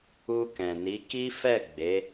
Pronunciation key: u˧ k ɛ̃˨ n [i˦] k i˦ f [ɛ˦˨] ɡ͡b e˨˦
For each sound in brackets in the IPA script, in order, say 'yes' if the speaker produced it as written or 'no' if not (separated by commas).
no, yes